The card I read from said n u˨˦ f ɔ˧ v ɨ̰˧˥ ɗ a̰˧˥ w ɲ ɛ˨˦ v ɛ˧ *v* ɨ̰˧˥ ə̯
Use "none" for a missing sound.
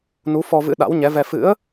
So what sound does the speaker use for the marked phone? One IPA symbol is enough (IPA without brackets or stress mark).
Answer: f